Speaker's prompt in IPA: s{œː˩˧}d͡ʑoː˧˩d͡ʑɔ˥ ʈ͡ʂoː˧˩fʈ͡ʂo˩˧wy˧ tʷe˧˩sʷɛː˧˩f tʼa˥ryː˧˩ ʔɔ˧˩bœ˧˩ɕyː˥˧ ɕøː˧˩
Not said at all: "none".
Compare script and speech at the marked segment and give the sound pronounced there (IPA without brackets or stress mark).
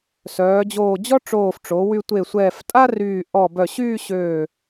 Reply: œː˩˧